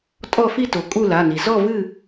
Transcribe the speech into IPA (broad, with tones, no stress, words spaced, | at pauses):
tʼɔ˥˨ fi˥˨to˩ kʼu˥˨la˩˧˩ni˩ zɔ˥˨vɨ˥˨